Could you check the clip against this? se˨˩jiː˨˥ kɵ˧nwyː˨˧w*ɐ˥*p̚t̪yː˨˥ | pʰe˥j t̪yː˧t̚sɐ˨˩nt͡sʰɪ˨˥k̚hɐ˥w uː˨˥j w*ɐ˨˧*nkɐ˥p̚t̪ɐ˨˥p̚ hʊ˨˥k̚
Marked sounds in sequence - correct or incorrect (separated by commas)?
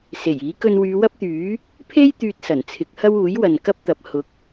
correct, incorrect